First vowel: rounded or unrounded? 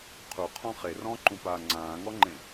rounded